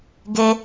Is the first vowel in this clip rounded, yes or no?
no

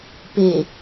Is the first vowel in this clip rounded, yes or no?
no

